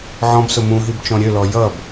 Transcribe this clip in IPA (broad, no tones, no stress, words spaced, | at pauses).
ʕɔ̃bsʊ mũɦibt͡ʃɔ̃ ɾʲølɔ jʌb